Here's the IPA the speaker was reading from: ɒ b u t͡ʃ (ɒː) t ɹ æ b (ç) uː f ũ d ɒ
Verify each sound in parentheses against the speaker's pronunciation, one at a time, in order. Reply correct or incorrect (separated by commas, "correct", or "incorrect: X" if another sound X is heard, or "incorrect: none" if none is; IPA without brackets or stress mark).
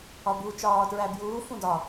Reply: correct, incorrect: j